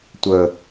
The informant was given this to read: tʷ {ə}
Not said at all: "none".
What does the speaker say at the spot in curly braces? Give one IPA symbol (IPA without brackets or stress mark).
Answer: ə